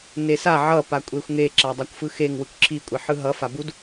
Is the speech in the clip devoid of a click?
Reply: no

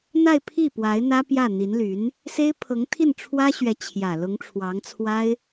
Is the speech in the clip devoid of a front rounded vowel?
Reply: no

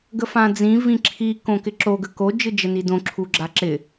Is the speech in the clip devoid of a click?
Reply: no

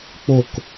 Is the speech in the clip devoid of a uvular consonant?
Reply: yes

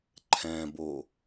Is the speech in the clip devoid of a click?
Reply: no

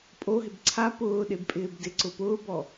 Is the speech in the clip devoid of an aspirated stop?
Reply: no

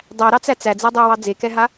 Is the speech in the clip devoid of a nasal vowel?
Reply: yes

